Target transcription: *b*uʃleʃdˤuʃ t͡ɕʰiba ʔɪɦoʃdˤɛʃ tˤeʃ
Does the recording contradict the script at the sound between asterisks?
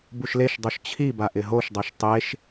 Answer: no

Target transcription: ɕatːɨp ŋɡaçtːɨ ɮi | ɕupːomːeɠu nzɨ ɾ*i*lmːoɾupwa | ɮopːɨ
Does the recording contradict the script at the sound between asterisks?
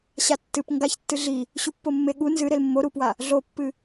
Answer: yes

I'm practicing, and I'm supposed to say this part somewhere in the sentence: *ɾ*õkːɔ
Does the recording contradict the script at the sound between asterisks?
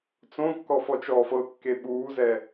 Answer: yes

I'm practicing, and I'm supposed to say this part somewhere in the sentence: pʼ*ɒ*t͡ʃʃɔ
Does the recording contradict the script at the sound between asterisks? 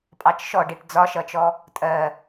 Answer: yes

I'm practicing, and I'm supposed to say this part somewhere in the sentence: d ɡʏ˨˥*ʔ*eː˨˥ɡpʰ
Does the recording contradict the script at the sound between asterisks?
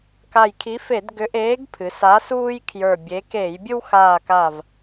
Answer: no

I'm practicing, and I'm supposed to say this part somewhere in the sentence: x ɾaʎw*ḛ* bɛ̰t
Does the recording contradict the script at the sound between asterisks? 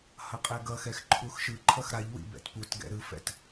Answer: yes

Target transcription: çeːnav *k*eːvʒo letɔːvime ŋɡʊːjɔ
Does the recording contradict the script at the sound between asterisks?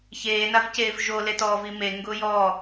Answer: yes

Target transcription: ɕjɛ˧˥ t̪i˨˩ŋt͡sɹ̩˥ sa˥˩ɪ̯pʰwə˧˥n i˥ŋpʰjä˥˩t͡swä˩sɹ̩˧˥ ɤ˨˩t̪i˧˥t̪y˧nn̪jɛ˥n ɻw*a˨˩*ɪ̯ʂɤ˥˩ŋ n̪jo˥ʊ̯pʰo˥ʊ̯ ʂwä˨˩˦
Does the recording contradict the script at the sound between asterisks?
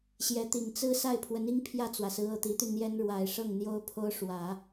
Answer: no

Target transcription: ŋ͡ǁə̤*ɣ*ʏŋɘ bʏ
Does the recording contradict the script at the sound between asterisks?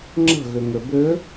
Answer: no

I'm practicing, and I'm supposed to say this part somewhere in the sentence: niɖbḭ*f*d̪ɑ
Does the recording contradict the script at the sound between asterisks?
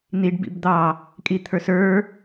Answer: yes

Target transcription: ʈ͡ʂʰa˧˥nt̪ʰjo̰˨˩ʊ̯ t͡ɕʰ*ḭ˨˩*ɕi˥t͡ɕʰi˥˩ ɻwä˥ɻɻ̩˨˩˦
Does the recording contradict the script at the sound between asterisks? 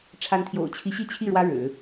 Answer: yes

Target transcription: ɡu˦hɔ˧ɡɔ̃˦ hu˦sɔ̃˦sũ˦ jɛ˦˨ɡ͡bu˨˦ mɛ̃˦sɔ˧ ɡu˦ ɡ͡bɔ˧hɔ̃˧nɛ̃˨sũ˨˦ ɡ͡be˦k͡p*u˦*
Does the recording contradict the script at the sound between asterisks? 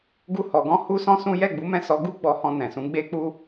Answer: no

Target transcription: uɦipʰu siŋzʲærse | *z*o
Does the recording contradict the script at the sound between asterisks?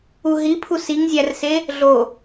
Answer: yes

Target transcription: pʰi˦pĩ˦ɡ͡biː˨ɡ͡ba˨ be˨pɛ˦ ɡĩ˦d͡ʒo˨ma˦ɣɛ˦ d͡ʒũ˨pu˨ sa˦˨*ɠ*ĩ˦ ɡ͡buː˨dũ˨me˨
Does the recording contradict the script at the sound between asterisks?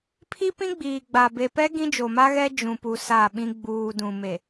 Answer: yes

